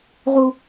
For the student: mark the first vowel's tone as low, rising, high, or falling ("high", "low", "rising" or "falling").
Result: low